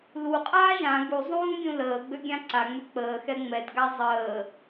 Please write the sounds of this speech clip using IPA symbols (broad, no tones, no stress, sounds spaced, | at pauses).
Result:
l u qʼ aː ʒ ã ɡ u zˤ ũː ɡʲ ũ l əː ɡ͡b ø ɡʲ ã ǀ a ŋ͡m ø k͡p əː x ɛ ŋ͡m ɛ d ɡ a zˤ əː